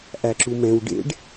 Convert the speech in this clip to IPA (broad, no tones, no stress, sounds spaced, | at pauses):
ʔ æ ǁ u m ɛ̃ w ɖ ḛ ɖ